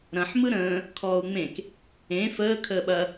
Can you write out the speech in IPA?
ɾ ɐ̃ ħ m ɯ ɾ ə̃ː | kʰ ɔː u̯ ŋ͡m ẽ k | ẽ f əː kʰ əː ɓ ɐ

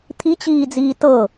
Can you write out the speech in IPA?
t̪ʰ i t͡ɕ iː d͡z iː t ɤ

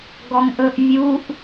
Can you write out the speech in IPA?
ɡ ɔ ŋ ʔ ɵ ʔ vʲ u ʔ

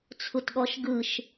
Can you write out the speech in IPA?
t͡sʰ u t ɠ ɔ ʃ ɡ ɯ ʃ

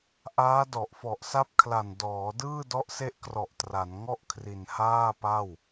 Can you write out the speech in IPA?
ʔ aː˦˥ d ɔ˨˩ ʔ f ɔ˨˩ ʔ s a˦˥ p̚ kʰ l a˨˩ n d ɔː˩˦ d ɯː˥˩ d ɔ˦˥ ʔ s e˦˥ ʔ k r ɔ˨˩ ʔ t r a˩˦ n ŋ ɔ˥˩ ʔ kʰ r i˨˩ n h aː˥˩ p a˥˩ w

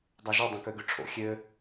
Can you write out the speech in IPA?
dˤ ɑ ʒ y dˤ õ k ø ɡ y ʈ͡ʂʰ o̰ xʲ ø

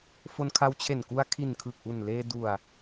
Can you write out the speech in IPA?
f o˧ n kʰ a˦˥ w t͡ɕʰ e˨˩ n k u˧ a̯ kʰ i˨˩ n kʰ ɯ˨˩ k̚ ʔ u˨˩ n l eː˧ d u˨˩ a̯

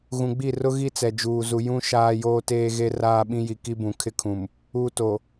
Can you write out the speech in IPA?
ɣ ũ˨ ɡ͡b i˦˨ r ʊ˦ ɣ i˦ t͡s ɛ˨ d͡ʒ uː˨ z u˨ j ũ˦ ʃ aː˦ j oː˦ t eː˦ ɣ e˦ r aː˦ ɓ ĩ˦ j i˨ k i˦ b ũ˨ kʰ ɪ˦ kʰ ũ˨ m | u˨ t o˨

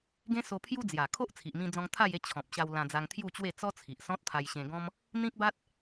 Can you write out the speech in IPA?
ɡ ẽ˦ s o˧ pʰ j u˦ d͡z j a˨˩ kʰ o˦ ʔ t͡sʰ i˨ ʔ m ĩ˧ d͡z ɔ̃˧ ŋ t̪ʰ a˥˧ j e˥˧ t͡ɕʰ ɔ̃˨ p̚ ɕ a˧ w l ã˧ d͡z a˧ ŋ t̪ʰ j u˥˧ t͡ɕ w e˥˧ t͡s ɔ˦ t͡sʰ i˨ ʔ s ɔ̃˦ t̚ t̪ʰ a˧ j ɕ ẽ˧ ɡ ɔ̃˦ m | n̪ ĩ˦ k̚ b a˦ t̚

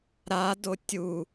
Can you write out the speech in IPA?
ɾ a d o tʲ u

